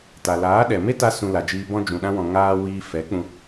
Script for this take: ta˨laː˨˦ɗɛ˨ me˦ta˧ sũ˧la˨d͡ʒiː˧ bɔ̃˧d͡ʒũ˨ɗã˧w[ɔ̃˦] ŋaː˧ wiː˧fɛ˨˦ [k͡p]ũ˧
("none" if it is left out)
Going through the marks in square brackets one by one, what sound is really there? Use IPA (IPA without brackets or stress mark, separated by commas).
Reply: ɔ̃˨, k͡p